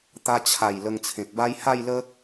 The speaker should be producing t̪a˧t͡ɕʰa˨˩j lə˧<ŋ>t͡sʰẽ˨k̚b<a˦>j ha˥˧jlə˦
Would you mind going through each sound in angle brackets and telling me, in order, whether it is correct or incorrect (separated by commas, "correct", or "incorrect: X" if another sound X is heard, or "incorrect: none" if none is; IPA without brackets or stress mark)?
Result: correct, correct